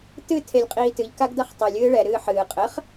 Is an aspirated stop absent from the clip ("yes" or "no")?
no